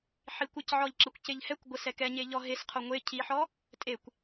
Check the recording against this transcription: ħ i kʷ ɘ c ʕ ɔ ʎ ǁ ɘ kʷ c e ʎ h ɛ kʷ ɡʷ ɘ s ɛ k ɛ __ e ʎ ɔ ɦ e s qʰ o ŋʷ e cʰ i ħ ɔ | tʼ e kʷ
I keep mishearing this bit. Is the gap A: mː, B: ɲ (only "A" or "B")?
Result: B